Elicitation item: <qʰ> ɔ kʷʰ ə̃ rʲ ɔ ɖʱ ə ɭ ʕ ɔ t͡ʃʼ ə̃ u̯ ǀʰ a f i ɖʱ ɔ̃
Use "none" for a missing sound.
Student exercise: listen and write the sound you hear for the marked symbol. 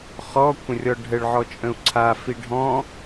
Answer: χ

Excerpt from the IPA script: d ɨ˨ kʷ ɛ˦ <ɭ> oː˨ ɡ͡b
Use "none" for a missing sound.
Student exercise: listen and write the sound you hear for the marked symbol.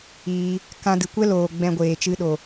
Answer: l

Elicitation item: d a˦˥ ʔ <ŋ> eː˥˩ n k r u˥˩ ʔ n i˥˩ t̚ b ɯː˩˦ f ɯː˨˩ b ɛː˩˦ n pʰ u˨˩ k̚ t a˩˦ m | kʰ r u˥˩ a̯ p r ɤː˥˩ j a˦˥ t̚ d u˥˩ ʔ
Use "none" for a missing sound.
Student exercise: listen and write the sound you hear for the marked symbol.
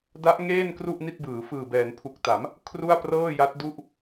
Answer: ŋ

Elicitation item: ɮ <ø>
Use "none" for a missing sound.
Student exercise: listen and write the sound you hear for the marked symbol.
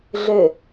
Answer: ø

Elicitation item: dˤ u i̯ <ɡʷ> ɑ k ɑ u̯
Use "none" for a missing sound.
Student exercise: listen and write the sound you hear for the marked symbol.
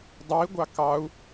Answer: ɡʷ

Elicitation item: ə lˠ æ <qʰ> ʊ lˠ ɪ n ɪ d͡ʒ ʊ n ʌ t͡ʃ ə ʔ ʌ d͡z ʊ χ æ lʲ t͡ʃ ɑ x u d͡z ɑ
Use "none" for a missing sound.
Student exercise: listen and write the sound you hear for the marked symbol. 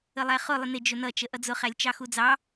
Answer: χ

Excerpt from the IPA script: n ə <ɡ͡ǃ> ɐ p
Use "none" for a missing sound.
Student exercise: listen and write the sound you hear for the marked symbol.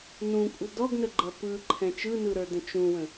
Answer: ɡ͡ǃ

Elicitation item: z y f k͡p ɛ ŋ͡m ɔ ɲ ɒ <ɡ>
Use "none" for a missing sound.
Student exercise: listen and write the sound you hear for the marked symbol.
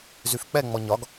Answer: ɡ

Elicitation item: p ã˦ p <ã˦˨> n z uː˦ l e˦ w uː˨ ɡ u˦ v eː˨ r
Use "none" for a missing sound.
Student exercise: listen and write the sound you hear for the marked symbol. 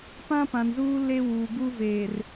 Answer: ã˨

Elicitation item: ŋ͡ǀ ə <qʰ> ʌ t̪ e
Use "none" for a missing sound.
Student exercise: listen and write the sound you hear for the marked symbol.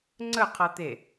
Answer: qʰ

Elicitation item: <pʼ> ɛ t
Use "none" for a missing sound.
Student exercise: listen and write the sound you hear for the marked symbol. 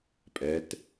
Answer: pʼ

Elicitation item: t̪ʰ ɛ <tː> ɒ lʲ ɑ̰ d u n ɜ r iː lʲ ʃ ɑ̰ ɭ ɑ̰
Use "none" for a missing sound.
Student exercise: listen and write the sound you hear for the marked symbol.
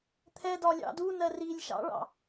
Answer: d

